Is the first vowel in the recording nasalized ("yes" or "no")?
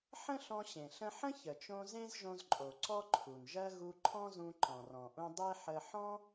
yes